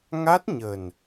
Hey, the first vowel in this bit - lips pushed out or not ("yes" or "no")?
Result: no